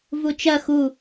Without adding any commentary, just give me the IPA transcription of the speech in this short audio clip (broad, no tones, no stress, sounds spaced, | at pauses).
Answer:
v u t͡ʃ ɐ x u